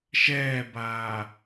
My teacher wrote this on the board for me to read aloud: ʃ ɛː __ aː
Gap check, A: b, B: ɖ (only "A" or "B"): A